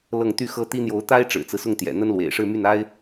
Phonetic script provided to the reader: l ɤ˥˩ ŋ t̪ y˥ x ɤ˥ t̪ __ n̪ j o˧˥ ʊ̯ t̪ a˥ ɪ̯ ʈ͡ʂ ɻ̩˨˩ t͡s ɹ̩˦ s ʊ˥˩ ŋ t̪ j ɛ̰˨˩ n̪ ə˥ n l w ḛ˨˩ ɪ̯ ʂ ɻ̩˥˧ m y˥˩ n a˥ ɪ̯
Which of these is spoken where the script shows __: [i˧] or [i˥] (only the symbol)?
i˥